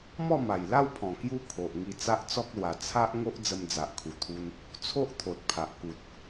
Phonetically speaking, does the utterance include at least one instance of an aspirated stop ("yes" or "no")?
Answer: yes